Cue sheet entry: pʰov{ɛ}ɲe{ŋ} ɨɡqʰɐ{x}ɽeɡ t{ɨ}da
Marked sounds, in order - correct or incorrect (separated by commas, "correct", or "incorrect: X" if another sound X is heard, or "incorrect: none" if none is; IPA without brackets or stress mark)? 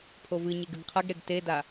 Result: incorrect: ɨ, incorrect: ɡ, incorrect: ɡ, incorrect: e